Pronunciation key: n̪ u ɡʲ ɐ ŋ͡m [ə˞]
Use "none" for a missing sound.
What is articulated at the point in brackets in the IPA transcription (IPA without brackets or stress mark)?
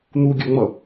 ʌ